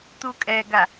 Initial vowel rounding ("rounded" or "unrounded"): rounded